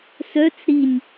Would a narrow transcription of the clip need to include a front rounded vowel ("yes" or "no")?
yes